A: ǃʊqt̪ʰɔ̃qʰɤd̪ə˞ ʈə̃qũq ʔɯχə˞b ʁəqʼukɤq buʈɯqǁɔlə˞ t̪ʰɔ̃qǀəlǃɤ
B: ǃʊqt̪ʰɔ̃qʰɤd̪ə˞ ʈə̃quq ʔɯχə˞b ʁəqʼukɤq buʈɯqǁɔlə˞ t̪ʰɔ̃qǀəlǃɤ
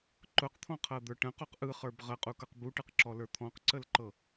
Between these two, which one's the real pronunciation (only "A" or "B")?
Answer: B